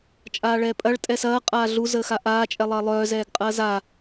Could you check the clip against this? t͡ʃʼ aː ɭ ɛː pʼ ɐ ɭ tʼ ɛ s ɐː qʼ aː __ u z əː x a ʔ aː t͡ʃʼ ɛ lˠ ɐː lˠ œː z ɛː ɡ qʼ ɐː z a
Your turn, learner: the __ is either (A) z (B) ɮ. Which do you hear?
B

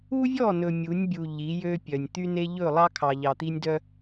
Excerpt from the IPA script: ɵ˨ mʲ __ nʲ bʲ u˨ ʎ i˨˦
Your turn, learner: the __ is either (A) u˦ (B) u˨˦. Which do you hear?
B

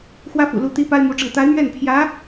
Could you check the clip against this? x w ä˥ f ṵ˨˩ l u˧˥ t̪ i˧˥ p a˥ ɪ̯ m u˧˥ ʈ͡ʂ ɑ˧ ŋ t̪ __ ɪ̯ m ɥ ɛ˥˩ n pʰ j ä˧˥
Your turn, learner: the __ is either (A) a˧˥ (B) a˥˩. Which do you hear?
A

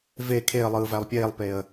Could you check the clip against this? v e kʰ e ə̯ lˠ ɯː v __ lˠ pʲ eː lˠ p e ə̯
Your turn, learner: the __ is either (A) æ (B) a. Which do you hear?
A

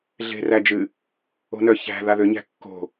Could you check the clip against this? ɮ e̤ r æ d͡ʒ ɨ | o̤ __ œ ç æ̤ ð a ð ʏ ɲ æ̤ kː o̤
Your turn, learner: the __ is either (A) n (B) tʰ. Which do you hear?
A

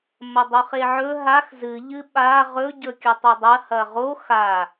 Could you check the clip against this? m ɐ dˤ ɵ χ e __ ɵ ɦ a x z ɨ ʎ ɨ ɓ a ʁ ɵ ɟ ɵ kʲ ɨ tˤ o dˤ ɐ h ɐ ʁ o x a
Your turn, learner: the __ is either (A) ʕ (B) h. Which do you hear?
A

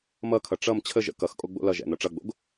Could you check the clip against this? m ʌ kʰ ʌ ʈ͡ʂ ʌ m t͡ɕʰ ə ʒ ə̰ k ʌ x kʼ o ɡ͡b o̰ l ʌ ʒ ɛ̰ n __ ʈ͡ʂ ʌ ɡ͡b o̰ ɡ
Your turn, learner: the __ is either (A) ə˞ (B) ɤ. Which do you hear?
B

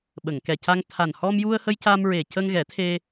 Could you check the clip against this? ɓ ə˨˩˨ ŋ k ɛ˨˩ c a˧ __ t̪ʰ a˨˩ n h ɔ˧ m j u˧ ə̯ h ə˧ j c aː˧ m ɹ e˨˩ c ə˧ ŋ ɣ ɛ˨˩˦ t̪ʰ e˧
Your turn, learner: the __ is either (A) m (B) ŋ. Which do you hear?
B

